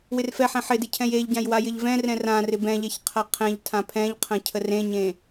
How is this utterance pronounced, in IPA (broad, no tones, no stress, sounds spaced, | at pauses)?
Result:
w ɪ r f ɛ ħ ɛ̃ ħ ɪ d ɪ cʰ ɛ̃ j e ʎ ɟ ã j w a j ɪ ʎ v ɛ̃ r ɛ̃ r ã r ɪ b ɛ̃ ʎ ɛ ç qʰ a qʰ ɛ̃ ʎ tʰ ã pʰ ɛ̃ ʎ qʰ ə̃ cʰ ə r ẽ ɲ ẽ